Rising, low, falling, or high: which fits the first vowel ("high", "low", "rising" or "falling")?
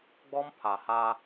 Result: high